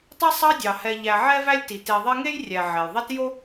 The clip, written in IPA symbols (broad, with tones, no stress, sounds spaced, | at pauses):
tˤ i˦ sˤ ɑ˦ dʲ ɑ˩ h ɛ˨ ʎ æ˨ ʕ ɛ˥ v æ˥ lʲ t i˩ t e˨ ðˤ e˦ ŋ e˥ j rʲ æ˨ ʕ ɛ˩ j ðˤ i˦ t j o˥